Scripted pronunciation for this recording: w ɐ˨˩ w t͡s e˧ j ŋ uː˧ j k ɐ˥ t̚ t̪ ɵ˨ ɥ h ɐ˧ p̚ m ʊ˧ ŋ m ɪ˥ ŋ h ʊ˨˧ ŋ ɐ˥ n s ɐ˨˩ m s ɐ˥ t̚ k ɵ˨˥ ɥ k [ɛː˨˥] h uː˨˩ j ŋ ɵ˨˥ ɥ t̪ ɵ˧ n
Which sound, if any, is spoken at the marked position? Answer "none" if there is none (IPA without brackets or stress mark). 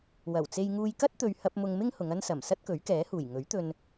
ɛː˨˥